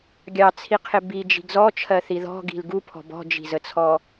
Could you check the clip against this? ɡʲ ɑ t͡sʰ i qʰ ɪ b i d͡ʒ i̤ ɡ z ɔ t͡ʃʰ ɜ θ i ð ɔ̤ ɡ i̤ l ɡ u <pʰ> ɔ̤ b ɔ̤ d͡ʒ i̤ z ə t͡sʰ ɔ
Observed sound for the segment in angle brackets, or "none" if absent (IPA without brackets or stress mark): pʰ